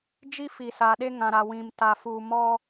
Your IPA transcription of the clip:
d͡ʒ i˦ f i˨ s a˨ ɗ e˦ ŋ ã˨ ɾ a˨ w ĩ˨ m t a˨ f uː˨ m ɔ˦

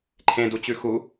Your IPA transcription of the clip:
ǃʰ ẽ d u t͡ɕ ʉ x u

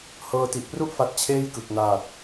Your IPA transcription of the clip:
h ɤː˧ t i˨˩ ʔ p r u˥˩ ʔ f a˦˥ t̚ t͡ɕʰ eː˥˩ j k ɯ˨˩ k̚ n aː˨˩ t̚

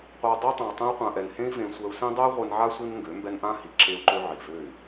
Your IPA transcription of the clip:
qʷ a˧ dˤ e˦ tˤ ã˨ u̯ tˤ ẽ˧ u̯ qʷ ã˨ ʔ ɛ˨ n h ẽ˦ i̯ v ẽ˧ sʷ ɛ˧ u̯ s ẽ˦ dˤ ɛ˦ y̯ ʁʷ e˧ n ʕ a˦ sʷ i˦ n ŋ ɡ ø˨˦ m b ɛ˦ n ʔ ã˦ h i˨ ǁ e˧ u̯ ǃ ø˧ ʕ i˨ v ø˦˨ y̯

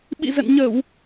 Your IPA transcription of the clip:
ɓ ḭ˧˨ z ə̰˧˨ n ɲ ə˧˩˨ w

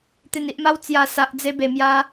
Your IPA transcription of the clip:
t̪ e˨˩ n i˨ ʔ m a˧ w t͡s j a˨˩ s a˨ ʔ d͡z e˧ b e˨˩ m j a˧

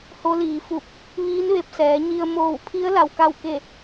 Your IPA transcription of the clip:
h o˧˥ l iː˩˧ f u˧˩ p̚ | ʋ iː˧˥ n ʋ e˧ p̚ s ɛː˩˧ ɲ i˧ ə̯ m oː˧˩ w pʰ i˧˥ ə̯ l a˧ w k a˥˨ w k e˥˨

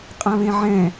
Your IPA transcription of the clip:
qʼ ã β ẽ ʕ ɛ̃

